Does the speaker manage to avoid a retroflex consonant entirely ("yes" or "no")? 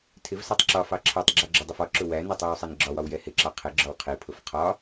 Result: yes